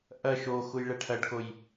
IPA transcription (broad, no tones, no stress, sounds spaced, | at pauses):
ʔ ɐ ʃ o x u j ɭ ɛ ʈʰ ɐ ɖ k o j